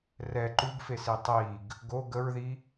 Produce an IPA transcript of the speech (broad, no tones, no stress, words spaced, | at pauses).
rɛ ǃuɡfesi tˤiɡ | ɡo ɡəɹði